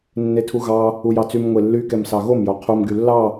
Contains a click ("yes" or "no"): no